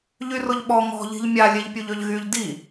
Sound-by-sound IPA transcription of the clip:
ʎ y r ʊ ʎ ɓ ɔ ŋ ɔ̤ ʎ i̤ ʎ mʲ a lʲ e ʎ pʲ u ʎ ø ʎ ɣ y ʎ d i

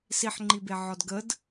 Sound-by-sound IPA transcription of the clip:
s i ħ ŋ͡ǃ i b e ʕ ɔ d ɡ ə d

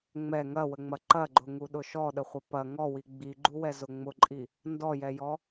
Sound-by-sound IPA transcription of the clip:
ŋ͡m ɛ ŋ ɐ w ə ŋ͡m ɐ ǃ ɐ ɡ͡ǃ ʊ ŋ u ɗ ʊ ʃ ɔ ɗ ə χʷ ɐ p ɐ ŋ ɔ w i ɡ͡b i ɡ͡ǃ u w ɛ z ʊ ŋ͡m ʊ ǃʼ i | n d ɔ j ɛ j ɔ

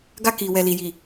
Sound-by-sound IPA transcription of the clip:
ɡ a˧ k i˨ w ɛ˨ l i˨ j i˨

